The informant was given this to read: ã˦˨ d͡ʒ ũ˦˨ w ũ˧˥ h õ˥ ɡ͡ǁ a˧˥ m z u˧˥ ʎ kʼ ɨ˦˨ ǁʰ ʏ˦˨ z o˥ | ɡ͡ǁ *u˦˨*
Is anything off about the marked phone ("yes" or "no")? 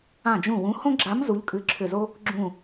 yes